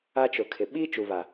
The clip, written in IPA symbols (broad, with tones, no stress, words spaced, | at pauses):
a˦t͡ʃʊ˨kʰɪ˨ ɓi˦ t͡ʃu˨βa˨